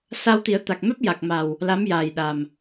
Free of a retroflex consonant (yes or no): yes